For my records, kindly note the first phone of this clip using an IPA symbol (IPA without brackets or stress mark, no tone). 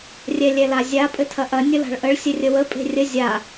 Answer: rʲ